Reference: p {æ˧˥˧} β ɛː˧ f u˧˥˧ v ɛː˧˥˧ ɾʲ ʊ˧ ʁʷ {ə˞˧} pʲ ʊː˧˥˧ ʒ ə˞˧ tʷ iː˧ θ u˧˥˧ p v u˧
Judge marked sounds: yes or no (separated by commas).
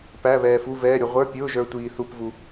yes, no